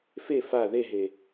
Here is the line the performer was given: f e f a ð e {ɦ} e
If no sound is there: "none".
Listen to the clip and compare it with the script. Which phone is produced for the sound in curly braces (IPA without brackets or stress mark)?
ɦ